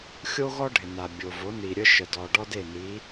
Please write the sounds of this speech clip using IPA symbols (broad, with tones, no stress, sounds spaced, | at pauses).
xʲ o˥ ɣ ɔ˥ ɖʱ ɪ˩ n a˩ bʲ o˩ v o˩˥ n i˩ ɾʲ ə˥ ʃ ə˩ d ɔ˩ ɖ ɔ˥ d e˥˩ n i˩˥